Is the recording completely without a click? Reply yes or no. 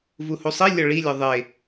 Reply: yes